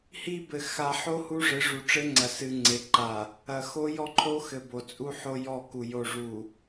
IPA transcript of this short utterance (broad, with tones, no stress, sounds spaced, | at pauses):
h i˦ b ɘ˨ x a˨ ħ o˦ h u˦ ʐ ɘ˨˦ ʐ u˨ ʈ͡ʂ ɘ˦ ŋ͡ǀ ɐ˨ s ɨ˨ ŋ͡ǀ e˨ ǃ a˨ | ɐ˨ x o˦ j ɔ˦ ǃʰ o˦ x ɘ˨ b o˨ t͡sʼ u˦ ħ o˦ j ɔ˦˨ k u˨ j o˨ ʐ u˨